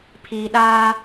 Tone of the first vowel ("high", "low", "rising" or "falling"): low